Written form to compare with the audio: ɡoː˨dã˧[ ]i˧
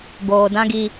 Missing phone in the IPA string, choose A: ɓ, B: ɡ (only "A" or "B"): B